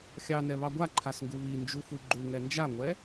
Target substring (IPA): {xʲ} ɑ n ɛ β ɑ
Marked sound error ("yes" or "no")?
no